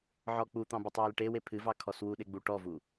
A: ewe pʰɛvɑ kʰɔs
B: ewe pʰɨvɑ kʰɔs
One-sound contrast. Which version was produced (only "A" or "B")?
B